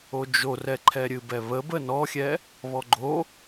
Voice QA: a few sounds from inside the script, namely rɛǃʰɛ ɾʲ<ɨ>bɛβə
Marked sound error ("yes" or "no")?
no